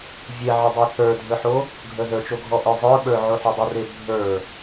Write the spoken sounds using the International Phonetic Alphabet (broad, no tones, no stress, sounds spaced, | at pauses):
vʲ e ʕ ə dˤ e θ ə˞ dʱ ə˞ ħ o | ɡʱ ə ð ə˞ t͡ʃ o ɡʱ ɔ ʔ ə˞ zˤ ə˞ ɓ ə˞ ʕ o ħ u dˤ ə r e bʱ ə˞